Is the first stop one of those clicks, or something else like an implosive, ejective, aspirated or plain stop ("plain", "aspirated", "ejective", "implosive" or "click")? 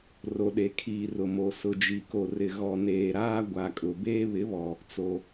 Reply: implosive